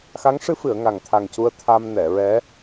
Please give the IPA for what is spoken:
x a˧˥ ŋ ʂ ɨ˧˥ f ɨ˨˩˨ ə̯ ŋ a˨˩ ŋ t̪ʰ a˨˩ ŋ c u˧ ə̯ t̪ʰ a˧ m n ɛ˨˩˨ ɹ ɛ˧˥

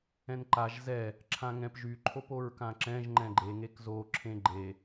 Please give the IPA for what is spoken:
ɛ̃ n ǃ a ʒ z ɛ | ǁʰ ã ŋ ɛ̃ p ʒ y ǃʰ o p o ɹ k ã ǁ ɛ̃ ʒ ŋ͡ǃ ɛ̃ ɡ͡ǃ e ŋ e k z o ǁʰ ẽ ɡ͡ǃ e

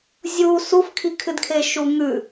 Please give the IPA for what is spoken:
zʲ u s u f kʰ i kʰ ɨ d kʰ e ʃ u ŋ ʉ

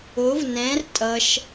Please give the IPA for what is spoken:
o v n ɛ̃ r tʼ ʌ ʃ

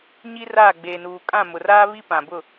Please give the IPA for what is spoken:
ɲ i˦ r aː˦˨ ɡ͡b eː˨ n uː˨ kʼ ã˦˨ m ʊ˨ r aː˦ β i˦ p ã˨ b ʊ˦˨

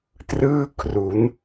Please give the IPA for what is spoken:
t r ɯː˥˩ kʰ r u˩˦ n

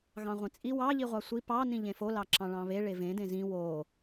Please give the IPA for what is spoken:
ɣ ɑ̃ ʁʷ ẽ t͡sʼ i w ɑ ʎ i ʁʷ ɑ sʷ i p ɑ n ĩ ʎ ẽ f o l ɑ ǁ ɑ̃ ɭ ɑ̃ β e ɭ e v ẽ d ẽ z ĩ w o

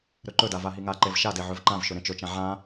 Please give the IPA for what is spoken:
ɾ ɵ ǃ ɵ d a v a ɦ i ŋ a ǃ e v ʃ a d e ʕ ɵ v ǃ ã v ʃ ɵ ɾ ẽ t͡ʃ ɵ t͡ʃ ã ʕ ã

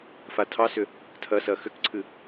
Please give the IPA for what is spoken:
f a tʰ ɑ s ʏ | tʰ ɐ s ɐ x ʏ k ǀʰ ɨ

